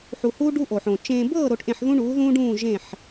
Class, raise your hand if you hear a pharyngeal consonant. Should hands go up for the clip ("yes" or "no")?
yes